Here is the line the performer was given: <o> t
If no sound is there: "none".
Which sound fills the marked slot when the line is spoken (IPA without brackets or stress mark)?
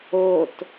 o